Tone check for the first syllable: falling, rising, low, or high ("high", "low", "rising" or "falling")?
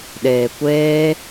low